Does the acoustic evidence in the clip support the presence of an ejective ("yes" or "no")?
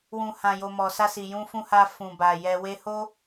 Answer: no